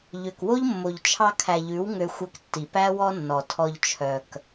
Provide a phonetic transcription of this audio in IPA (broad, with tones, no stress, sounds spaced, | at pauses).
ʎ ø˨ k w o˦ ʎ mː o˨ ʎ t͡ʃʰ ɑ˧ kʰ æ˨ ʎ ʉ˨˦ w ŋ ø˧ xʷ œ˧ k tː i˨ p æ˦ w ɔ˦ nː ɔ˨ tʰ ɔ˧ ʎ t͡ʃʰ œ˨ k